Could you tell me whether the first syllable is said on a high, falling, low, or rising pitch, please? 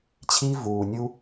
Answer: high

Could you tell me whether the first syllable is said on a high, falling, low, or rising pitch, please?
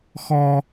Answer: high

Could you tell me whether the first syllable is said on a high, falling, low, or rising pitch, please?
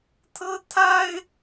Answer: high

